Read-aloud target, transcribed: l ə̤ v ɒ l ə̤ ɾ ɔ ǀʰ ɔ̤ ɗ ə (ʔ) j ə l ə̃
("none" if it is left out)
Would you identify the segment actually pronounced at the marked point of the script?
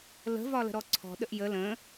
ʔ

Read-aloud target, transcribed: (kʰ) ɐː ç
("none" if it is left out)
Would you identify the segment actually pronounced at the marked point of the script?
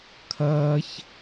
kʰ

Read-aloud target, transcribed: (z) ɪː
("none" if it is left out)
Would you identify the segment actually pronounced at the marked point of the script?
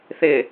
θ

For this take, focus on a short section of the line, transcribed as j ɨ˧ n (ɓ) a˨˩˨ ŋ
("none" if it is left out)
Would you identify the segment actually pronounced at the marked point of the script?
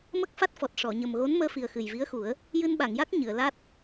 ɓ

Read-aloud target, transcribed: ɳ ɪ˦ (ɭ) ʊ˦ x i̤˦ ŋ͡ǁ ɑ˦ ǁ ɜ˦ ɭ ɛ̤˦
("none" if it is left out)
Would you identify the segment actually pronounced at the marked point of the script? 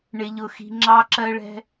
ʎ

